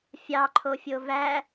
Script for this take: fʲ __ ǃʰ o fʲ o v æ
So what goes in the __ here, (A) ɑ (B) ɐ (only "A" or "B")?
A